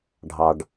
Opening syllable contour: low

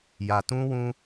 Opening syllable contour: low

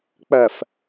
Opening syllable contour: low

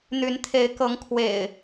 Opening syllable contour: rising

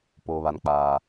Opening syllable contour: low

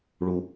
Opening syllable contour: low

